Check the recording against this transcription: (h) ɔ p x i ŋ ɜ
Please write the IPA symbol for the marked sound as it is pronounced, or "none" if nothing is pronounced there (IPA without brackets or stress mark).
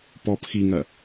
p